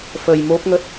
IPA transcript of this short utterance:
fə˧jmo˦˥p̚ŋə˦˥t̚

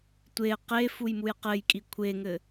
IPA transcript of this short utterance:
tʷe qe fujmujqɘjkʼi kʷʰeŋɘ

